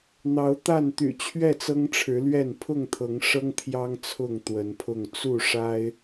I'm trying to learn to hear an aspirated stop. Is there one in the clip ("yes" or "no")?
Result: yes